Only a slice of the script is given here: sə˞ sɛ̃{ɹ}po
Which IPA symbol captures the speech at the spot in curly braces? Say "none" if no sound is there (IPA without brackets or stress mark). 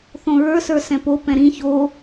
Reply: none